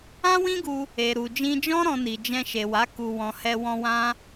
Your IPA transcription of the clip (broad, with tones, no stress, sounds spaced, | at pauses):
ã˦ w ĩ˦ ɡ u˧ | e˨ ɾ u˨ d͡ʒ ĩ˧ d͡ʒ ɔ̃˦ ɾ ɔ̃˧ n i˨ d͡ʒ ɛ̃˧ ʃ e˨ w a˨˦ k u˧ w ɔ̃˧ h ɛ˧ w ɔ̃˧ w ã˦